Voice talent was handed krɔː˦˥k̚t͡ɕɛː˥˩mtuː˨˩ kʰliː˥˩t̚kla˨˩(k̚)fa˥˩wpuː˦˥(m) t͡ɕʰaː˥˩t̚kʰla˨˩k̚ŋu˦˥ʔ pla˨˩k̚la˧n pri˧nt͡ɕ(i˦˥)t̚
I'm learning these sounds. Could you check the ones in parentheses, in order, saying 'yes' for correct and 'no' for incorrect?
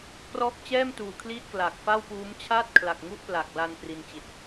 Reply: yes, yes, no

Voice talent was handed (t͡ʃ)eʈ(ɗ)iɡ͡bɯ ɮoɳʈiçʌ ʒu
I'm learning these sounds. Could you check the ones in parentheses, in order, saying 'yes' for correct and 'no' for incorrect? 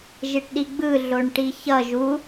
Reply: no, yes

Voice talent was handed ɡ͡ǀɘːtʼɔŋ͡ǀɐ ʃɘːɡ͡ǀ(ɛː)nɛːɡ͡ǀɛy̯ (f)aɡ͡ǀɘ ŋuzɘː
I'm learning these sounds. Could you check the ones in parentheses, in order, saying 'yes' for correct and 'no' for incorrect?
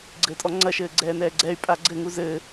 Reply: yes, no

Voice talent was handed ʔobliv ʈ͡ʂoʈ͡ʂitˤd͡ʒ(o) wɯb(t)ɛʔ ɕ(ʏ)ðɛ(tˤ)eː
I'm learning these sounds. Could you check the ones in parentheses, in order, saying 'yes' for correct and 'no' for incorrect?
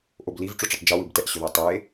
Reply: yes, yes, yes, yes

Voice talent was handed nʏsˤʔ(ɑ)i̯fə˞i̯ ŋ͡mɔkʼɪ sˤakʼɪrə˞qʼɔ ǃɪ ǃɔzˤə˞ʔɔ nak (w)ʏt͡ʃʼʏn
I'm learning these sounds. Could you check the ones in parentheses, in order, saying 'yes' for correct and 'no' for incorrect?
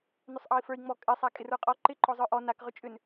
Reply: yes, no

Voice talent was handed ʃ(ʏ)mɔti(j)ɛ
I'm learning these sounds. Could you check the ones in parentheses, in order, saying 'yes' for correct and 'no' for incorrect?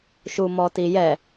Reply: no, yes

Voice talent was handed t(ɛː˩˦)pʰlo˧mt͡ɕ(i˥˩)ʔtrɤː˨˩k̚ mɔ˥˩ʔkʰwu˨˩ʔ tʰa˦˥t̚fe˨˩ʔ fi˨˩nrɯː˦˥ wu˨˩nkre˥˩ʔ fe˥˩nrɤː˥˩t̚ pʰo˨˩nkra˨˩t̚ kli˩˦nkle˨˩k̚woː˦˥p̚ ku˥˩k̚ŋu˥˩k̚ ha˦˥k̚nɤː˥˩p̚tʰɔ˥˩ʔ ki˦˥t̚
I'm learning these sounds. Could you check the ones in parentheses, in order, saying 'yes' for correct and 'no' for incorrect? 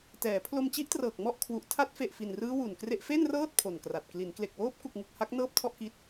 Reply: yes, no

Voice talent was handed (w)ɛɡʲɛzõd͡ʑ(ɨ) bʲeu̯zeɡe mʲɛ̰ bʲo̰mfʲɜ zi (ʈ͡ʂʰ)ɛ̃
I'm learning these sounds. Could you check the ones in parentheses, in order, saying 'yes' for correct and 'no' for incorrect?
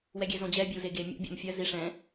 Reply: yes, no, no

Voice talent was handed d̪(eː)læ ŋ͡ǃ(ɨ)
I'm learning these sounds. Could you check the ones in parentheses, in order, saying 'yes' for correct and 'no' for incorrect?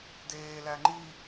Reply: yes, no

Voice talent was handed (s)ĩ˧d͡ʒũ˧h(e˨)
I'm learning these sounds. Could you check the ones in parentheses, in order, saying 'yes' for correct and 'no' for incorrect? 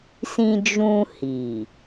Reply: yes, no

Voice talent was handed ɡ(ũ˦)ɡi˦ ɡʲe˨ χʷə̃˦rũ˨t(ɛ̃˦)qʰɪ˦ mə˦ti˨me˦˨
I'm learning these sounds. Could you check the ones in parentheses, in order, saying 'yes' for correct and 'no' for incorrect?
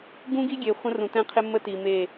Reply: yes, yes

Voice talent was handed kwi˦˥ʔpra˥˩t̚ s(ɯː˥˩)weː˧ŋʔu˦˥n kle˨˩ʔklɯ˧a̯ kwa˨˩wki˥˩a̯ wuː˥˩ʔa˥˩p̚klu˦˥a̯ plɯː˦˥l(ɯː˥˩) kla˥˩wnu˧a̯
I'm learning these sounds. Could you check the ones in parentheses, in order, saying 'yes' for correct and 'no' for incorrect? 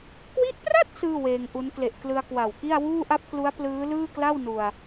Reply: yes, yes

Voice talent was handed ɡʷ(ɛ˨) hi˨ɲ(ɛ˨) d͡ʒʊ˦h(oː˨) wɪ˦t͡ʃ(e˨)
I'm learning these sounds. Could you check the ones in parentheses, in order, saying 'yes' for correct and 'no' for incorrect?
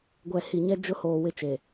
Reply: yes, no, yes, yes

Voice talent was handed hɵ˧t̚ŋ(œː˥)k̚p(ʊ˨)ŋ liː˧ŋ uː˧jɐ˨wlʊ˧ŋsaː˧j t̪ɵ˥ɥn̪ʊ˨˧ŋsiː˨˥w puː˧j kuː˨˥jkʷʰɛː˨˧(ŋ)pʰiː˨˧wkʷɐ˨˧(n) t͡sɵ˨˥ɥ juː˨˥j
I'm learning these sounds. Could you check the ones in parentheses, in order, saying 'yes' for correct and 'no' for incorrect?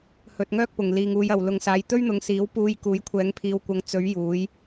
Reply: yes, yes, yes, no

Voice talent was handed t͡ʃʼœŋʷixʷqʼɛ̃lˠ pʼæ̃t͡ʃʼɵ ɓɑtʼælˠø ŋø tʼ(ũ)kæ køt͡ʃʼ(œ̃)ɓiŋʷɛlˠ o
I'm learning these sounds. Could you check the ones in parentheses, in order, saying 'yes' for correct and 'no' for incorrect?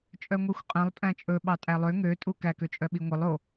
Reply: no, no

